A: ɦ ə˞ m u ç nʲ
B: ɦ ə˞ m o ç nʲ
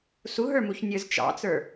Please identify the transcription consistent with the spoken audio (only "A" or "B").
A